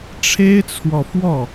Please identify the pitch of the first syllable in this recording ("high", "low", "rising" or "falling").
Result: high